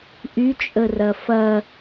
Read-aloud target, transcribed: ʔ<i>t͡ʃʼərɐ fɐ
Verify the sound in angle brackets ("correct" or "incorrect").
incorrect